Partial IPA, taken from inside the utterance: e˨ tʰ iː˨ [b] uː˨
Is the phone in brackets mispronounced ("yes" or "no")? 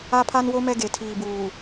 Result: no